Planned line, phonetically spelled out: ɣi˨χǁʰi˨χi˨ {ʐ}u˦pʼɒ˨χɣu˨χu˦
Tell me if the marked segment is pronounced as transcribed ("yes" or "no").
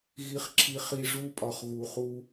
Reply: yes